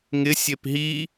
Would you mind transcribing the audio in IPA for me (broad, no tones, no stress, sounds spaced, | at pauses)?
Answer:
ŋ ɪ sʲ e p ɦ i